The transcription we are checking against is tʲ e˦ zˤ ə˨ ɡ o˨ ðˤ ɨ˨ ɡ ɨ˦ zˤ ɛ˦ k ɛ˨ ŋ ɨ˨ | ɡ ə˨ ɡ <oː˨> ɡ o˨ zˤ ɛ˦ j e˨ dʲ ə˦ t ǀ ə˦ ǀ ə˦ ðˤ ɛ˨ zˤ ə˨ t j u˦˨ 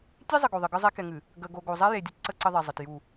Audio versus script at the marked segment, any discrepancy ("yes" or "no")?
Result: yes